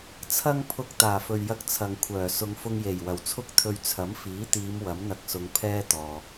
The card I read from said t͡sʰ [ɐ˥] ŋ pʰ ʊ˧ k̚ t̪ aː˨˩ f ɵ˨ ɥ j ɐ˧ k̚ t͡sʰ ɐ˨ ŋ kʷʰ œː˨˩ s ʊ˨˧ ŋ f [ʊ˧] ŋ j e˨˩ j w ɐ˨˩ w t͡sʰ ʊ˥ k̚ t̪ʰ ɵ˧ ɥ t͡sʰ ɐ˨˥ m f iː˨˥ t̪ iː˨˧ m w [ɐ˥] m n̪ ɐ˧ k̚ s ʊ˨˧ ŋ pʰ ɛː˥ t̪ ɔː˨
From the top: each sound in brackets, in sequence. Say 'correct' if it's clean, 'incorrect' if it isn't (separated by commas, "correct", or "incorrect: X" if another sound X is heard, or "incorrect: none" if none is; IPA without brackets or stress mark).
correct, correct, incorrect: ɐ˨˥